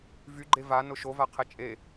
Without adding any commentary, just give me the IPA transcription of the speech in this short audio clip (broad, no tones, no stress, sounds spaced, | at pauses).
v y ɡ͡ǃ e v a n ʊ ʃ o v a qʰ ɛ t͡ʃʼ e